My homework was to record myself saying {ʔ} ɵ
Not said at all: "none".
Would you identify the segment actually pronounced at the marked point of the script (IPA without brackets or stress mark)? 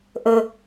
ʔ